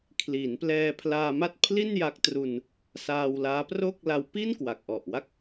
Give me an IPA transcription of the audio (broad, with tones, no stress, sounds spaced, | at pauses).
kʰ l i˩˦ n p l ɛː˧ pʰ l aː˧ m a˥˩ t̚ pʰ l i˥˩ n j a˦˥ k̚ t r u˧ n | s aː˧ w l aː˦˥ p r o˥˩ k̚ l a˦˥ w p i˥˩ n k w a˨˩ k̚ ʔ ɔ˨˩ ʔ w a˥˩ k̚